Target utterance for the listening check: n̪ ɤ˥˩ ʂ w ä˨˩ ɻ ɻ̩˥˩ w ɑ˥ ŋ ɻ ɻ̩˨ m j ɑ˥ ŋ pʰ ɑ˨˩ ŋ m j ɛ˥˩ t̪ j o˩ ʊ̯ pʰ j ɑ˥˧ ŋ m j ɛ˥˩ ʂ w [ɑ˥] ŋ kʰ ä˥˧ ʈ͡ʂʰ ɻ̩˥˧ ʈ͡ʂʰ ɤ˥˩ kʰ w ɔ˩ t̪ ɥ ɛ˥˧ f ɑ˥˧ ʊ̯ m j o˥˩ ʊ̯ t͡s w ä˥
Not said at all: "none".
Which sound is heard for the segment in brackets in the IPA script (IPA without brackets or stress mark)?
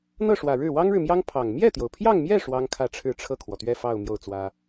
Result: ɑ˥